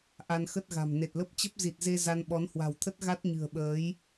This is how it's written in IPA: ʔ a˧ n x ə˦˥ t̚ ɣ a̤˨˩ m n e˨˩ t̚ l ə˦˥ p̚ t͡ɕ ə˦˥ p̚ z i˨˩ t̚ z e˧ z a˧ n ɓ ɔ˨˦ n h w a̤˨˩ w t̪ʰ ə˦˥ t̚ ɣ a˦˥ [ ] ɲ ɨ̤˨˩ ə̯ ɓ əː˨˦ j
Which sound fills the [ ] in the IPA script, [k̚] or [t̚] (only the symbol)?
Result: t̚